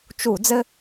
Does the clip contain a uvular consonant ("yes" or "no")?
no